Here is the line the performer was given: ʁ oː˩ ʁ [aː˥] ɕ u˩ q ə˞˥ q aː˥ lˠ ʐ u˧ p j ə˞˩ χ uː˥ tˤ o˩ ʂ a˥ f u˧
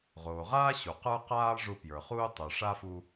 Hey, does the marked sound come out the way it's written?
yes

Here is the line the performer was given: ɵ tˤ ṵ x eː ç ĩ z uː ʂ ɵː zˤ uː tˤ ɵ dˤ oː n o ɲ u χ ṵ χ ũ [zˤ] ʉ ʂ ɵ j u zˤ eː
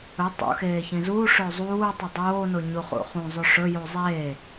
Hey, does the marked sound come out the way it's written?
yes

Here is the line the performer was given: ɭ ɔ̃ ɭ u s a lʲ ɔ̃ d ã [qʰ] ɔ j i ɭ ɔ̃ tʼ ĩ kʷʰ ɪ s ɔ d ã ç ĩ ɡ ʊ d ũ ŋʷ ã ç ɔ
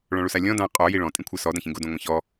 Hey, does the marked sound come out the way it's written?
no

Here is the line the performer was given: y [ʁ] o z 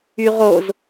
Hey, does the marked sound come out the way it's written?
yes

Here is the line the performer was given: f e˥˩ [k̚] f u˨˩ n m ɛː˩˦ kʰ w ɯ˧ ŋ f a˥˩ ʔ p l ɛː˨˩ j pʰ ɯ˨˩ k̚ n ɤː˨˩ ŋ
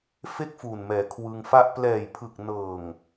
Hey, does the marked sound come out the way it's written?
yes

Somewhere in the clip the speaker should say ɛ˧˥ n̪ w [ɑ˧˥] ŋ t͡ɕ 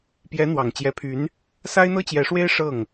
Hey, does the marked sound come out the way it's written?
no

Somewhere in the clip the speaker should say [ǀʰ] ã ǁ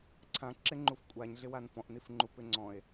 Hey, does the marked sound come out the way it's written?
yes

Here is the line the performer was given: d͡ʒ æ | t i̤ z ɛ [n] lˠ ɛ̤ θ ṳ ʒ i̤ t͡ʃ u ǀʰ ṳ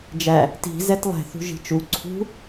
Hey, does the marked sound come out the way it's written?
no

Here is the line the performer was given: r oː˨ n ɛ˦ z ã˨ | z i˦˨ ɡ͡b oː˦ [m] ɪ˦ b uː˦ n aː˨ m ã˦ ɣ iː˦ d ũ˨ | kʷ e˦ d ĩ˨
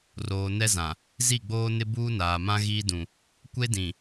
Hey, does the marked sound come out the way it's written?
no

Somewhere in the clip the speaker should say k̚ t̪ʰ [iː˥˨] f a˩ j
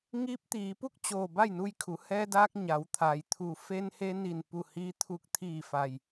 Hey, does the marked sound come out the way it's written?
no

